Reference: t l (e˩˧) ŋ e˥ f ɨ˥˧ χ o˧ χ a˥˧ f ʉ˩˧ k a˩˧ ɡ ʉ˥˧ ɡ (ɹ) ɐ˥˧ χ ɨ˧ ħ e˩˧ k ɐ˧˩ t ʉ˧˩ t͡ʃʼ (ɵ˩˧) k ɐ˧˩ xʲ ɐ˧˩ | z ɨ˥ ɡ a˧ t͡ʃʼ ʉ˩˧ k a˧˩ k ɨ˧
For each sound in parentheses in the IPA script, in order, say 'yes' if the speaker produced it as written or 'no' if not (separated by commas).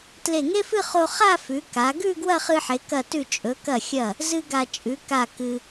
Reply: no, no, yes